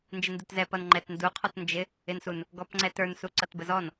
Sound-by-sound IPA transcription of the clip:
n d͡ʒ ɪ n d u t z ɛ p ʌ n ŋ͡ǃ ɛ t n d u qʰ ɔ t n d͡ʒ ɪ | ɪ n s u n | ɡ ɔ p ŋ͡ǀ ɛ t ə˞ n s u ǀ ʌ t b ə z ɔ n

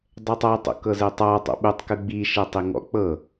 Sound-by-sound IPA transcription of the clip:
dˤ ɛ tˤ a tˤ o̰ k ɤ z ɛ tˤ a tˤ o̰ ɓ u tˤ k ɯ ɡ͡b i ʃ ɛ tˤ i ŋ ɔ̰ k͡p ɤ

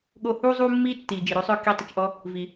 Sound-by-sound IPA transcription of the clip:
ɠ o˧ h uː˥ zˤ uː˥ mː iː˥ tː iː˩ d͡ʒ i˩ ɾ o˧˥ sˤ œː˥ k i˧˥ tˤ ə˧ t͡ʃ ʔ ɔ˥ | v i˩

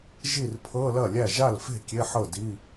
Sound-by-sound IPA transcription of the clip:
ʒ i˥˩ r pʰ ɤ˧˥˧ l ɐ˥˩ lʲ æ˥˩ ʒ a˥˩ l f e̤˥˩ kʲ e˧˥˧ ħ ɤ˥˩ d i˧˥˧

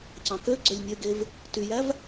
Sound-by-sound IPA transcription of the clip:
c ɑ̃ k ø ɡ͡ǀ ø lʲ nʲ ø ɡ e v | t y j æ v

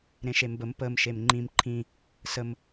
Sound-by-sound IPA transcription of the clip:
ɾ ẽ ʃ e m b ə m p ə m ʃ e m ŋ͡ǃ ĩ m ǃʰ ĩ | s ə m

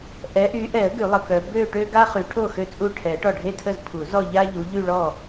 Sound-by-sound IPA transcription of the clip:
ʔ ɛ˨˦ ʔ y˨˦ ʔ ɛ˨˩˦ ə̯ ɡ y˨˩˦ lˠ ə˨ k œ˨˦ b ø˥˧ ʈ ø˥ ɡ a˥ χ y˨˦ ʈʰ o˥˩ x ø˥˩ t͡sʼ u˥˩ ʈʰ ɛ˨˩˦ ʈ ɔ˥˩ ɖʱ e˥˩ tʰ ə˥˩ z pʰ u˨˩˦ z ɔ˥˧ ʎ a˥ ʎ u˨˦ ʎ y˥˧ ɭ ɔ˥˩

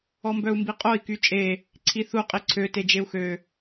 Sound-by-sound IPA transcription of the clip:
ɔ m b œ u̯ m b i qʼ o i̯ k y t͡ʃʼ e | ǀʰ i θ u qʼ i ǀʰ ø t e d͡ʒ e u̯ x ø

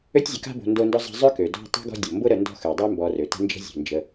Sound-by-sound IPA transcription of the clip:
ø˥ tʲ zʲ ə˨ k a̤˥ b o̤˨ n d o˦ n d ʊ˥ zˤ ə̤˦ zˤ ø˥ k ø˩ d ɔ̤˦ tˤ o̤˥ ɡ ɔ̤˦ dʲ o˩ m b ʊ˥ ɾ ə˨ n d ɔ̤˦ x ø˩ dˤ ø˥ m b ɔ˨ r ø˩ t ə̤˦ n d͡ʒ ə̤˦ zʲ o̤˩ n d͡ʒ ə˨

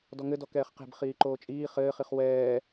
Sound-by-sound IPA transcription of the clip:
d ɔ ŋ ɘ d ɔ k ɛː χ q e̤ b χ iː ǃ oː t͡ʃʼ iː χ ɘː χ i χ w ɛː

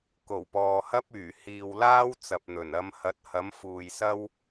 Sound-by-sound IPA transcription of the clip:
k o˨˩ w p ɔː˨ h ɐ˥ p̚ yː˨˩ h iː˨ w l aː˥ w t͡s ɐ˨ p̚ n̪ ɵ˨˩ n ɐ˨˧ m h ɐ˨˥ t̚ h ɐ˨˥ m f uː˨ j s ɐ˥ w

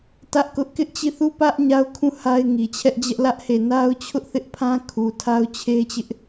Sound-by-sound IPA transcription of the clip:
t ä˦ ʔ k ʊ˦ ʔ k ɪ˦ ʔ t͡ɕ i˦˨ θ u˦˨ p ä˦ ʔ ɲ a˦ ʊ̯ kʰ ũ˦˨ h a˦ ɪ̯ ŋ i˨ t͡ɕʰ ɛ˦ ʔ d͡ʑ ɛ˦ ʔ l ä˦ ʔ h e˦˨ n a˦ ʊ̯ t͡ɕʰ ʊ˦ ʔ θ ɪ˦ ʔ pʰ ã˦ kʰ u˨ tʰ a˦ ʊ̯ t͡ɕʰ e˦ t͡ɕ ɪ˦ ʔ

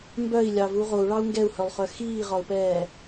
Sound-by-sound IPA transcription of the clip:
m b œ i̯ lʲ ɑ v u ʁ o u̯ ɭ ɑ u̯ ŋ ɡ ɛ u̯ h œ lˠ χ œ x iː ʁ ɒ u̯ p ɛː

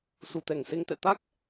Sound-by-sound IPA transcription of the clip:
s u˨˩ t̪ ɛ˧˩ ŋ s e˧ ŋ t̪ ɛ̰˧˨ t̪ a˦˥ k̚

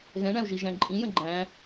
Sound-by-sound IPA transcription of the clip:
ɣ ɛ̃ ɳ æ̃ u̯ ʒ i ʒ æ̃ ǃʼ ĩ j ə̃ ɡ͡ǃ æ̃

